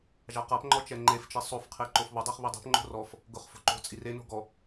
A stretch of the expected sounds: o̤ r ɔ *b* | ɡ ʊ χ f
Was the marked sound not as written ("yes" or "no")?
yes